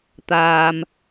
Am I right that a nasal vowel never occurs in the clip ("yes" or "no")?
yes